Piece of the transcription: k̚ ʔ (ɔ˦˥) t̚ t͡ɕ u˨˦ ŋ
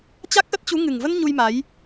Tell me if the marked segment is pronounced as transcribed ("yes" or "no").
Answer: no